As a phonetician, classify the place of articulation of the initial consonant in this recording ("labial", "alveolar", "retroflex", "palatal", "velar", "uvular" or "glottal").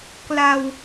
velar